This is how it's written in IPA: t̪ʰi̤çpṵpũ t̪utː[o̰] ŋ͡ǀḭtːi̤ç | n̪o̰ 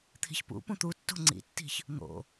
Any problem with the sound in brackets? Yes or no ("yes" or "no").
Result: yes